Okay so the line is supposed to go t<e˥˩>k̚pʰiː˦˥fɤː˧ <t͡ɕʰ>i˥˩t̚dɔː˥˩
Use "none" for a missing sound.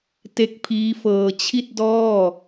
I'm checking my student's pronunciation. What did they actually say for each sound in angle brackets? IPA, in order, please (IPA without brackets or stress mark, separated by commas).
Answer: e˦˥, t͡ɕʰ